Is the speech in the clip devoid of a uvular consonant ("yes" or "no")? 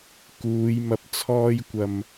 yes